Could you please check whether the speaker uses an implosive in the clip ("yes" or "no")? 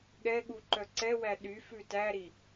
yes